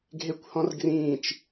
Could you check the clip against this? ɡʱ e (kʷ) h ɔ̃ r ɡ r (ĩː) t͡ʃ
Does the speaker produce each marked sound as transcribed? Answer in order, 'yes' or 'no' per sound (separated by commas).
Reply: yes, yes